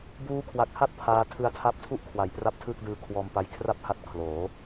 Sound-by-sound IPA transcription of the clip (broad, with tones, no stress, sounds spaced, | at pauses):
b uː˦˥ kʰ w a˨˩ k̚ h a˥˩ t̚ pʰ aː˦˥ tʰ ɯ˧ a̯ tʰ a˦˥ p̚ tʰ u˥˩ ʔ kʰ w a˨˩ j p r a˦˥ p̚ tʰ ɯː˥˩ k̚ d ɯː˦˥ kʰ w ɔː˧ m p a˦˥ j kʰ r a˥˩ p̚ h a˦˥ t̚ kʰ l oː˩˦